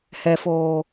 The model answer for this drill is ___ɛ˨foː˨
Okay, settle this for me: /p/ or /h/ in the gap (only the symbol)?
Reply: h